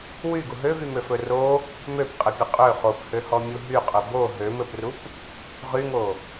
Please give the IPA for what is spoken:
w y ɡ u ɦ ø v y m ø f ɵ r o | m ø p qʼ ɘ pʲ ɘ qʼ ø χ o p h ø h ɔ mʲ u ɦ y qʼ ɵ b o ɦ ø m ɘ p r u p | ʁ y ŋ o

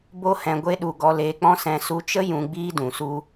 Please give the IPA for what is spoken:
b o˦ h ɛ̃˧ ɡʷ e˦ ɗ u˧ ɡ ɔ˧ l eː˧ k͡p ɔ̃˦ s ɛ̃˧ s u˧ t͡ʃ ə˦ j ũ˧ ɡ͡b iː˦ d ũ˨ s u˧

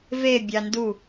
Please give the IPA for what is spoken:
v e bʲ ɑ n d u

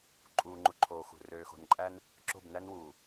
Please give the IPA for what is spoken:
ǃʼ uː˨ ŋ͡ǃ u˨ ǃʰ oː˨ x ṳ˨ r øː˨ x o̤˨ n ǃʼ æ˦ n | ǁ o̤˦˨ b n æ˦ n w uː˨

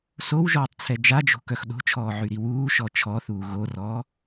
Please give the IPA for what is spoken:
s o w ʒ ɔː tˤ t͡sʰ ɛ d͡ʒ a d͡ʒ o̤ k œ x ɗ o̤ t͡ʃʰ ɔː ʕ y ɾ i w uː ʃ ɔ t͡ʃʰ ɔ θ uː ɣ o r ɔː

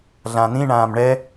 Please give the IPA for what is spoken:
ɮ ã n̪ ĩ ɳ ãː m ɳ ɛ

